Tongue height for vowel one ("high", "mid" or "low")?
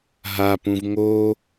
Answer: low